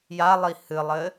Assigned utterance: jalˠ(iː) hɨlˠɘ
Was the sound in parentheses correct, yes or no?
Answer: no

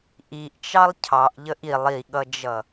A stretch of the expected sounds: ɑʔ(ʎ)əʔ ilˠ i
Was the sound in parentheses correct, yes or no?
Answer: yes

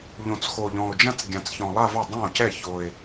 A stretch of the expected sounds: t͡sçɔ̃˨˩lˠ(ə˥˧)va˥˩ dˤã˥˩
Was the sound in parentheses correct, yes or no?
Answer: no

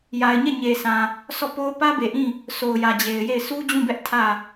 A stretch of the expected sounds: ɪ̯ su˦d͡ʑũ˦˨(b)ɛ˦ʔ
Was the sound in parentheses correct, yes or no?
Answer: yes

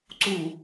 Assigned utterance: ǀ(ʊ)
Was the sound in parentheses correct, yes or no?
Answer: no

